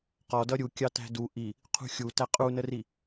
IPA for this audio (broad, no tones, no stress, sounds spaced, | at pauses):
q ɔ d ʌ ɾʲ u kʲ ɑ t æ̤ d u ʔ i | qʰ ṳ xʲ u t æ qʼ u n ə r i